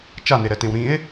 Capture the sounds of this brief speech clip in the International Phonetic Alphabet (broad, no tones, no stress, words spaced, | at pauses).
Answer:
t͡ʃaneɾɛtẽw ɾĩe̯